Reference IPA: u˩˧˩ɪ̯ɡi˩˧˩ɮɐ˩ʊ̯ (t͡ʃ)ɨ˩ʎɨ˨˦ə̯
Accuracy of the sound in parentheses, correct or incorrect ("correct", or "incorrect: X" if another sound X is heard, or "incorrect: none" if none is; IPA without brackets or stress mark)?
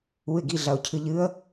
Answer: incorrect: cʰ